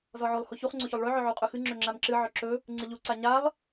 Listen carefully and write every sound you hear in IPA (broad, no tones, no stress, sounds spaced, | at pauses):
z ɔ ʕ o lˠ h o ç u χ ŋ͡ǀ o ç o lˠ ɭ ø ʕ ɵ ʕ u qʼ ɵ x ɨ ŋ͡ǁ ø ŋ͡ǁ a m ǁ ɨ ʕ ɵ ǁ ɵ | ŋ͡ǀ ɨ ʎ u ǀ a ɲ a lˠ